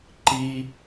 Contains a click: yes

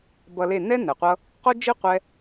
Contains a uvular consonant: yes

